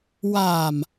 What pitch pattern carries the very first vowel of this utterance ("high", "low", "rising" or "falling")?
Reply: low